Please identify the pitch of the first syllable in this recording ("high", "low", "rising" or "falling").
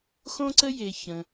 high